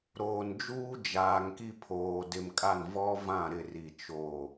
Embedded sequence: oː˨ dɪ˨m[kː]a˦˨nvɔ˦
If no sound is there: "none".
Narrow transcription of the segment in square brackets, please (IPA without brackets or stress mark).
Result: kʼ